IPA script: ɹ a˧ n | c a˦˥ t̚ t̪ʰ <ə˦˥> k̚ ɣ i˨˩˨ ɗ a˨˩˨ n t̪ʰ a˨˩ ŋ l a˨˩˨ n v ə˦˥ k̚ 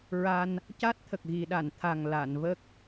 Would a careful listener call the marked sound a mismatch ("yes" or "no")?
yes